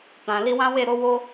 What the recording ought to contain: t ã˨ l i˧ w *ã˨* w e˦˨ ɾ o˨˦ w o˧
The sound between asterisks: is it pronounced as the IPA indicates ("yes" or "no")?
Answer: no